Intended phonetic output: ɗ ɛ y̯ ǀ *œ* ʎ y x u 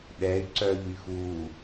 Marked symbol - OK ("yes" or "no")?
yes